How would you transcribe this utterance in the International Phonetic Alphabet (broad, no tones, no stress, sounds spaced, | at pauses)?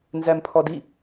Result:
n z æ m pʰ ɔ d i